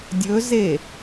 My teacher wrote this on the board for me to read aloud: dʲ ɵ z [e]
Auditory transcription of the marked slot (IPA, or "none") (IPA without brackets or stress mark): e